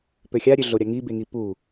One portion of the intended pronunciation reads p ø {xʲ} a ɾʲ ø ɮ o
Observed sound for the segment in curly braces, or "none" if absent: xʲ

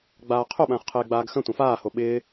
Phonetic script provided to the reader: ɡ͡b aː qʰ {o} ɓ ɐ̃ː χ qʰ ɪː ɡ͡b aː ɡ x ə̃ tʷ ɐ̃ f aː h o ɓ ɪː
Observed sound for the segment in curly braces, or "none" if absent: o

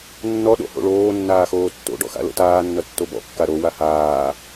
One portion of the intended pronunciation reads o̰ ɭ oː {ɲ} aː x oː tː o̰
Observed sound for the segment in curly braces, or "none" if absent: nː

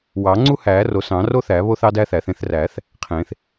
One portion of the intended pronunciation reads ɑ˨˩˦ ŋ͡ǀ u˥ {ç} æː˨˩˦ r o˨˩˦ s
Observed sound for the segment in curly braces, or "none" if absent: h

